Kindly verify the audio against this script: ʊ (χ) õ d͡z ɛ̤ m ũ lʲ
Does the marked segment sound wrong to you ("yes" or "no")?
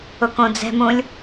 yes